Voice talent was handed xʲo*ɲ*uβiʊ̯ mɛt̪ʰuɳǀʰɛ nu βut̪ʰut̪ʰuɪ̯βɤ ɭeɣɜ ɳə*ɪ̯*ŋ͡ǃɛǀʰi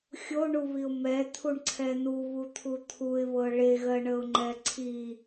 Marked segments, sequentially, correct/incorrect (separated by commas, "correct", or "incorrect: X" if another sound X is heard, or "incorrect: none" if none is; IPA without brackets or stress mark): incorrect: ɳ, incorrect: ʊ̯